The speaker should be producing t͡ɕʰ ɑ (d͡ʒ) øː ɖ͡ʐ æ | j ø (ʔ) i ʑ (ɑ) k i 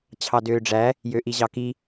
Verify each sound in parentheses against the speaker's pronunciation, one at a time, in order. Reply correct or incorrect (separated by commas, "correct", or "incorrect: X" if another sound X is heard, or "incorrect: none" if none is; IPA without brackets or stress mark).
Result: incorrect: d, correct, correct